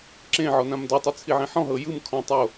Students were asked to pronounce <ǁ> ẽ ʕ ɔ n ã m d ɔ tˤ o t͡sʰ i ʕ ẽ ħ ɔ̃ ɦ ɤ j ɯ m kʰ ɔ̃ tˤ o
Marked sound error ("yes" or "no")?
no